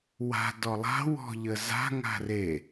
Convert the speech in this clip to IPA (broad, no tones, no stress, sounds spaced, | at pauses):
w a̤ d ɔ lˠ a̤ w ɔ̤ ʎ ə z a̤ ŋ a̤ r e